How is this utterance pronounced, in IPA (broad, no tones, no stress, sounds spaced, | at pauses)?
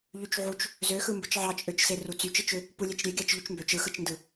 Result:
ʎ y t͡ʃ ʕ u t͡ʃ | z ø x ɯ m b ɯ t͡ʃ ʕ ɑ t͡ʃʼ ø t͡ʃ s e r u t͡s y t͡ʃ ɯ t͡ʃ ø | p u lʲ e t͡ʃ ɾʲ e ɡʲ ɑ t͡ʃ ʎ y t͡ʃ m b ø t͡ʃ ɯ x ɯ t͡ʃ n d ɯ